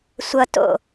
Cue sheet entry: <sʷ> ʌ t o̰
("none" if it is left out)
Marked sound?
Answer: sʷ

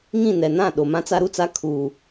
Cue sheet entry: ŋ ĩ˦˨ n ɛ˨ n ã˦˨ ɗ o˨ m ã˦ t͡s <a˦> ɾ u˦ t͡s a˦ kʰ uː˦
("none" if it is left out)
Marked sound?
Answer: a˦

